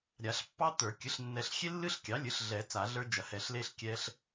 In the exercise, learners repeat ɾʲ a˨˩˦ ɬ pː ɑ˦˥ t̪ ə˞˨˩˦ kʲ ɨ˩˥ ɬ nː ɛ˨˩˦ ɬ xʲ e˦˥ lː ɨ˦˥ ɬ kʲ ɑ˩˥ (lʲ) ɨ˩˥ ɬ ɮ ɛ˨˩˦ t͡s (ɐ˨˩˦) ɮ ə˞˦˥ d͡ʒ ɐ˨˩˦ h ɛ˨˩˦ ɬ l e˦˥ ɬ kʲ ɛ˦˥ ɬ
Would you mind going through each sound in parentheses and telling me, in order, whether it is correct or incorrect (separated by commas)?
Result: correct, incorrect